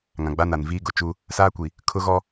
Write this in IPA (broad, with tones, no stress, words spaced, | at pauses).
ŋã˨ɡ͡ba˦na˨nviː˦ ɡʊ˨t͡ʃu˦ | saː˦kʷi˨ | kʰʊ˦ɣɔ˦